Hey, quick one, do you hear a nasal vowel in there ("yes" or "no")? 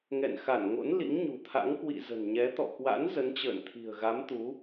no